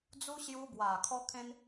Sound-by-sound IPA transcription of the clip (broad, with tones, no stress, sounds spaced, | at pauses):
d͡z u˧ ɕ j u˧ b w a˨˩ kʰ ɔ˧ kʰ ẽ˧ n